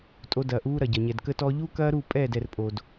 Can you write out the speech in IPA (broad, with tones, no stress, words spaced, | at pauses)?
tʼo˧dɐː˨ʔuː˧ ɾɐ˨ɟɐ˨ɲɛ˨d kə˧tɔ˧ʎu˦ kɐː˦ɾu˦˨ pʼɛː˦˨dɛ˨rpʼo˨d